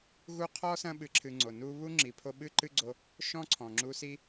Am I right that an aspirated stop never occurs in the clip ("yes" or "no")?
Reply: no